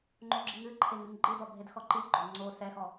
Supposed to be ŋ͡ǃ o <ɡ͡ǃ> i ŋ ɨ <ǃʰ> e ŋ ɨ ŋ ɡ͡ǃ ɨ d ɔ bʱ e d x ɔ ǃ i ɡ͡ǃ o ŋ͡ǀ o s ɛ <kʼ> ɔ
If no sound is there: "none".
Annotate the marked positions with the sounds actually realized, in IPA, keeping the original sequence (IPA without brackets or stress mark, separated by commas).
ɡ͡ǁ, ǃʰ, x